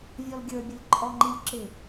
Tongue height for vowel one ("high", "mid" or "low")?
mid